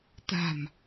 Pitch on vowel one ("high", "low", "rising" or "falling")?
low